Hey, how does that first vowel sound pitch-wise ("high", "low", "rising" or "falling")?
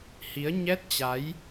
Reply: rising